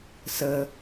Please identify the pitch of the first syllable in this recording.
low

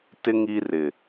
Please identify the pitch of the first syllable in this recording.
high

